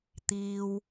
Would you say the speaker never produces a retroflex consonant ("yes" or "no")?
yes